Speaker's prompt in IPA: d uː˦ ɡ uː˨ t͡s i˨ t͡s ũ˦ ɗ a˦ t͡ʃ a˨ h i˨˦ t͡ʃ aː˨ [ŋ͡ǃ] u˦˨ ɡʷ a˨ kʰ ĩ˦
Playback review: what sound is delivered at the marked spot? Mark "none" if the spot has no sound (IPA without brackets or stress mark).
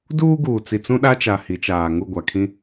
ŋ